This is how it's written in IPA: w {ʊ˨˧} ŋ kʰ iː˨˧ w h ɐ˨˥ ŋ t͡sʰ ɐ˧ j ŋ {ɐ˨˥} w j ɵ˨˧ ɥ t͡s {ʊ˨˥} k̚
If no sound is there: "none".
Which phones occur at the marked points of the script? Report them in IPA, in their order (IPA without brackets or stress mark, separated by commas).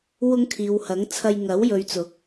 ʊ˨˧, ɐ˨˥, ʊ˨˥